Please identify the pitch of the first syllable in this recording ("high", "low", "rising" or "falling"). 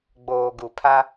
low